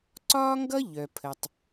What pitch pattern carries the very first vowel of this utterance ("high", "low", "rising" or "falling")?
high